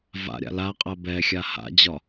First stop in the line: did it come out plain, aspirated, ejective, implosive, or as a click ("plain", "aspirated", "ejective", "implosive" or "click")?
ejective